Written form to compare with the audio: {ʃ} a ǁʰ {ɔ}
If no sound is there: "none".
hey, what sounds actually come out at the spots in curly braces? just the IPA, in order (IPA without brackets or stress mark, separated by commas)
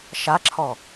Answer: ʃ, ɔ